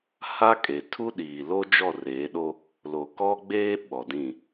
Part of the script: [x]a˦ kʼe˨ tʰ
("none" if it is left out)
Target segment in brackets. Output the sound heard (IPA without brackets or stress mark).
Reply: h